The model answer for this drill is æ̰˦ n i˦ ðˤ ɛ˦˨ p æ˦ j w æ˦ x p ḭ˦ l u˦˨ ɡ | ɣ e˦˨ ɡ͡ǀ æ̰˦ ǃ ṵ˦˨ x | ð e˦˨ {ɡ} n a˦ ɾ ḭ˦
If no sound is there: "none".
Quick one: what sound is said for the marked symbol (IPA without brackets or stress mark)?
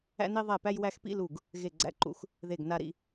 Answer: ɡ